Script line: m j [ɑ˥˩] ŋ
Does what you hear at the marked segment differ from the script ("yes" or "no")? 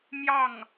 no